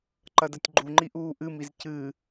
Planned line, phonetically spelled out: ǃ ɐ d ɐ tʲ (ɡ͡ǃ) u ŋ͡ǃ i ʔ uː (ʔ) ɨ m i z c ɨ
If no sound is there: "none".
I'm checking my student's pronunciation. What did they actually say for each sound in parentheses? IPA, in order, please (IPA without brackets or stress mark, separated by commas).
ɡ͡ǃ, ʔ